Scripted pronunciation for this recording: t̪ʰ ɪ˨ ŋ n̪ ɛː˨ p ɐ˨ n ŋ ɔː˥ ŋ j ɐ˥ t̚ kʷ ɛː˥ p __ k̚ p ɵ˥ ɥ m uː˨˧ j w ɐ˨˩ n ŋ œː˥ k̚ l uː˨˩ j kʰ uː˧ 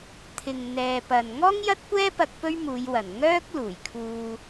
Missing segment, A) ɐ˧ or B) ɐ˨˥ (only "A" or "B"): A